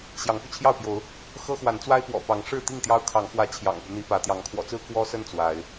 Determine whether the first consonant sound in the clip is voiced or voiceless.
voiceless